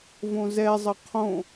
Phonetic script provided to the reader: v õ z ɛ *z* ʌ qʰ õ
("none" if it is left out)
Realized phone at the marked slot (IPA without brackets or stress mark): zˤ